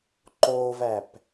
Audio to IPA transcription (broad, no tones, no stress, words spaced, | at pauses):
ǃovæp